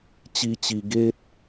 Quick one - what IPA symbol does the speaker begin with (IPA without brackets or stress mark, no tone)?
t͡ɕ